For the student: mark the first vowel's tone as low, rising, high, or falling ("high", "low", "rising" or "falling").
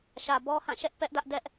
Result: low